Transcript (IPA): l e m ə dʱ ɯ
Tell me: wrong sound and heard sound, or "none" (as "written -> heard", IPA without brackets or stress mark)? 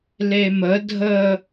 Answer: ɯ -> ə